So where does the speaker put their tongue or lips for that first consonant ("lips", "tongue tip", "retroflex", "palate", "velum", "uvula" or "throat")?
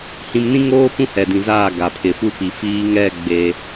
throat